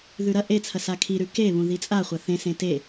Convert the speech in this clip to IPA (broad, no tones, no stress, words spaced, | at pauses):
ðʉɾɐ ʔet͡sʰɐ sakʰiɾʉ keβũ ðit͡sʼaχʷɐ θẽsẽ te